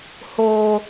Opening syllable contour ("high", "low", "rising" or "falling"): low